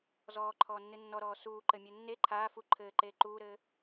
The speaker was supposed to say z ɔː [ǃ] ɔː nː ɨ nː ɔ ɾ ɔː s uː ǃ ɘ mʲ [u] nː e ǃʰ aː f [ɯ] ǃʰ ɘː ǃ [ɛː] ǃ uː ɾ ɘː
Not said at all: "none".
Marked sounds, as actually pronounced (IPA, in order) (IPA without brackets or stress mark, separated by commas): ǃʰ, u, u, eː